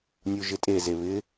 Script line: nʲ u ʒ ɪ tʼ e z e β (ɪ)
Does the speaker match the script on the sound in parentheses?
yes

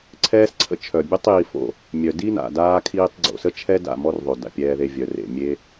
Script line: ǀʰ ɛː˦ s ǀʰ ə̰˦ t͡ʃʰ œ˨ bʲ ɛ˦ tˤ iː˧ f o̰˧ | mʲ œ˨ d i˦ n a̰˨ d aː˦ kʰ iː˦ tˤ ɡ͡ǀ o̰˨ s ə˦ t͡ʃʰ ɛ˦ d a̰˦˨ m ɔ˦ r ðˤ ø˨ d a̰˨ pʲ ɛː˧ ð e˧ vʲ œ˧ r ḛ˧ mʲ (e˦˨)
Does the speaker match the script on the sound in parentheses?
no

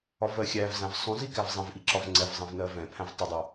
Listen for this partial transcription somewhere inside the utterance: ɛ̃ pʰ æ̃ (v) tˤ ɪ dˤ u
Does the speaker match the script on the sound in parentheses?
yes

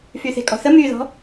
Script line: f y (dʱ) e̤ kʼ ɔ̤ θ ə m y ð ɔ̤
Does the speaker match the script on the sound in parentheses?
no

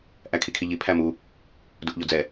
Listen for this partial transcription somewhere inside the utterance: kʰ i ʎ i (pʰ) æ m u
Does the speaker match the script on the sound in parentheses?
yes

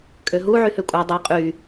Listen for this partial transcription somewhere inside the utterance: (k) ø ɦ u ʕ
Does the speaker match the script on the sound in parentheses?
no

